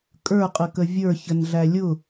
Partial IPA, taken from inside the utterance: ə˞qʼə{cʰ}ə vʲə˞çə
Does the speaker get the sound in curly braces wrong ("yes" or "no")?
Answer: yes